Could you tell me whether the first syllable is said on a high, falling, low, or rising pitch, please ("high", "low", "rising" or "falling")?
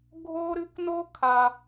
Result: high